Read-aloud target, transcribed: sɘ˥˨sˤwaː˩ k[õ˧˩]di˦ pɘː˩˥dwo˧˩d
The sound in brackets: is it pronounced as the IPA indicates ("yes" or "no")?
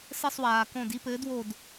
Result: yes